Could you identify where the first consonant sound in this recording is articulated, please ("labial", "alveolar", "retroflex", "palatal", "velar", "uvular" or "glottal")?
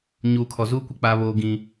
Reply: palatal